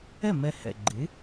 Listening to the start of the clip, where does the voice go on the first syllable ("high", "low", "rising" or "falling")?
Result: falling